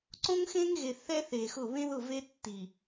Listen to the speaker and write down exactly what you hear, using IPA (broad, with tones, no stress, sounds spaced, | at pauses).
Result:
ǀ õ˦ ŋ x ẽ˦ ŋ ɣ e˨ θ ɛ˦ θ e˨ x ʊ˦˨ β ẽ˦ ð ʊ˦˨ v e˦ tː i˨